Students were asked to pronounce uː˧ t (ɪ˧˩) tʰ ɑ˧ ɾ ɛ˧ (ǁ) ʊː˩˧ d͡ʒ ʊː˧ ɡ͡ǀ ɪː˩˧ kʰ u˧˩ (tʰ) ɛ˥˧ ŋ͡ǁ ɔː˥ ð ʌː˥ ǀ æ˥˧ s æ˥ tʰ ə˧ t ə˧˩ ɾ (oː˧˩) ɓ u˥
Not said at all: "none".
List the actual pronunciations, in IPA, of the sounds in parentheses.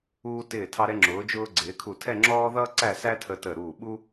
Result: ɪː˧˩, ŋ͡ǁ, tʰ, uː˧˩

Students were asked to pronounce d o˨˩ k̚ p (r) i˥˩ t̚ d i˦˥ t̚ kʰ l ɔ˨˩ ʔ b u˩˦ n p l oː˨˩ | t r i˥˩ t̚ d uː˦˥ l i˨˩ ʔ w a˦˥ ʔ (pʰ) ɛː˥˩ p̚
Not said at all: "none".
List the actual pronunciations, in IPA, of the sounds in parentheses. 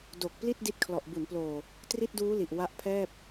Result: l, pʰ

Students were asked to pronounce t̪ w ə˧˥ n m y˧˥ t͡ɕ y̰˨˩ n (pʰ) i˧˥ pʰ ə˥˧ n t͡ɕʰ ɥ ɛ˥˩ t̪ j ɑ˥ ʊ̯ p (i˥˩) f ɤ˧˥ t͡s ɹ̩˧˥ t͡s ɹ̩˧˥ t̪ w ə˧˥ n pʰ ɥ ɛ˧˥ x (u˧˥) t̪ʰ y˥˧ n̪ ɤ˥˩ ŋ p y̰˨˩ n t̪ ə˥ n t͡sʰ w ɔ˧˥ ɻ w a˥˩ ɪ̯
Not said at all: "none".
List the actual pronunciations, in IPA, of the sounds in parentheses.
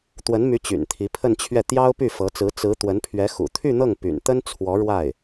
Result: t̪ʰ, y˥˩, ṵ˨˩

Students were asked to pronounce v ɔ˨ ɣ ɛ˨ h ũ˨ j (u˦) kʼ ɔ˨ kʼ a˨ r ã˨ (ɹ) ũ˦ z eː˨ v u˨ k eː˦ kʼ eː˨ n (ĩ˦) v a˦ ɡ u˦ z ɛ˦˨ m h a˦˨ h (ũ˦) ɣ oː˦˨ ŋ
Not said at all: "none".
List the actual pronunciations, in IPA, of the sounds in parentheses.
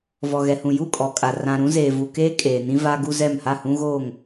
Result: u˦˨, ɾ, ĩ˦, ũ˦

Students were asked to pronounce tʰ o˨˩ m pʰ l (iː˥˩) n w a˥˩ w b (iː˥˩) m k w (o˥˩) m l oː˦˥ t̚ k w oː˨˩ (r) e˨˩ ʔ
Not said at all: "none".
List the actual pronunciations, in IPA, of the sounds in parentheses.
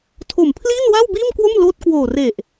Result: iː˥˩, iː˥˩, o˥˩, r

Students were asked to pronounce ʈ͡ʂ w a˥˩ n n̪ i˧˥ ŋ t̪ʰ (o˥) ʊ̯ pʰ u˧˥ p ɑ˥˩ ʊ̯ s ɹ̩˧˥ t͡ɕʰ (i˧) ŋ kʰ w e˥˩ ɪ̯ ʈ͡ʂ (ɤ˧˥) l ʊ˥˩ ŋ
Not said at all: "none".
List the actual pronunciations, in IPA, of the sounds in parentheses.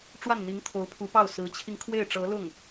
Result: o˧˥, i˧, ɤ˧˥

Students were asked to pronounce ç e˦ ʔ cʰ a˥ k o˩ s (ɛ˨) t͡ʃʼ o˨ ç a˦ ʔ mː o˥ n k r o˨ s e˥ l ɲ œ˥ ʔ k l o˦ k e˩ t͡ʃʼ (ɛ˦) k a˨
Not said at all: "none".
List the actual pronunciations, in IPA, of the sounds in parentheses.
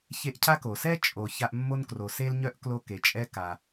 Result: ɛ˥, ɛ˦

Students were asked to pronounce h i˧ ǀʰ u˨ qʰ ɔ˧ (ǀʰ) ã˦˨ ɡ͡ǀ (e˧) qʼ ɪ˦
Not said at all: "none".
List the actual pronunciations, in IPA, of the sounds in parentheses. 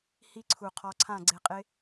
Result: ǀʰ, e˧

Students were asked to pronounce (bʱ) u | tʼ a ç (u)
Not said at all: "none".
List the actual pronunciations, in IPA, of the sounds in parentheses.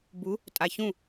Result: b, ũ

